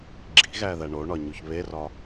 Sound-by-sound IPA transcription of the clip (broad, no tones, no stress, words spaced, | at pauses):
ɡ͡ǁi̤ɣæðæ ɳoɳɒɲuç βerɒ